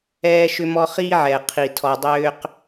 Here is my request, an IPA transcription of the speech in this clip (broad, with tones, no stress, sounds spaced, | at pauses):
ɛː˦ ʃ ʏ˦ m ɔ˦ χ iː˦ ʕ ɛ˨ qʰ i˨ tʰ ɔ˨ dˤ ʏː˦ q